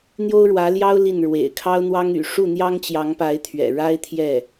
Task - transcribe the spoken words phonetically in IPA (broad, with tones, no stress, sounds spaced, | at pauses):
n̪ j o˥ ʊ̯ ɻ w ä˧˥ l j ɑ˥ ʊ̯ l i˥˩ n ɻ w ḛ˨˩ ɪ̯ kʰ ɑ˥ ʊ̯ n̪ w ɑ˥ ŋ y̰˨˩ ʂ u˥˩ n̪ j ɑ˥ ŋ t͡ɕ j ɑ˧˥ ŋ p a˧˥ ɪ̯ t̪ʰ ɥ ɛ̰˨˩ ɻ a˥ ɪ̯ t̪ʰ j ɛ˥˩